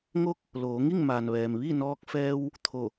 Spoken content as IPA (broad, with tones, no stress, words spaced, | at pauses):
ŋo˧k̚ | loː˩˧ŋi˥˨ŋ maː˩nʋɛː˩m ʋi˥˨nɔː˧k̚fɛː˧w | t̪ʰo˧˩